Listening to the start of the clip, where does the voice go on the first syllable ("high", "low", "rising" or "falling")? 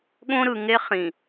high